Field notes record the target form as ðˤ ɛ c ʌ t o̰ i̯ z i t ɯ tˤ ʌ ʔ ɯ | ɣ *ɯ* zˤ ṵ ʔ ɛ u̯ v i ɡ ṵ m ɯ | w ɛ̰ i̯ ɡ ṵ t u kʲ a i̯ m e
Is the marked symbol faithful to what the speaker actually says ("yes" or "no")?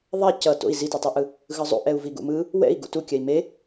yes